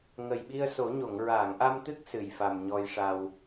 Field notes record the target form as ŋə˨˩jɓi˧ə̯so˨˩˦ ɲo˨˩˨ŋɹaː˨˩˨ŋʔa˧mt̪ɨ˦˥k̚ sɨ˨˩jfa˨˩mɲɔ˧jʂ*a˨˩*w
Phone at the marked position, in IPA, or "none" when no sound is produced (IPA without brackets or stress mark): a˧